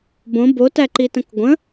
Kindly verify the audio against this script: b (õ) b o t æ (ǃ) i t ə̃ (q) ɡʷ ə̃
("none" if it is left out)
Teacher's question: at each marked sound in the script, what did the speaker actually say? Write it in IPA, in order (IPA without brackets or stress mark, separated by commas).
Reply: õ, ǃ, k